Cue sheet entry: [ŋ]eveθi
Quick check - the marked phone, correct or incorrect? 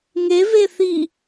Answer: correct